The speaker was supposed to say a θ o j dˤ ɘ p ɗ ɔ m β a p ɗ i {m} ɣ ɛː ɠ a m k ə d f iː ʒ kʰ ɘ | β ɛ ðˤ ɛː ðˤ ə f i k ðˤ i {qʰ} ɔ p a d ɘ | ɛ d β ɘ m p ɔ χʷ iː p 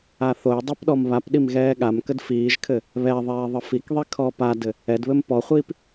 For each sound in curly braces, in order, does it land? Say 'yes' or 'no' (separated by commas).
yes, no